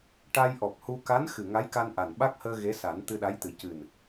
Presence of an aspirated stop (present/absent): absent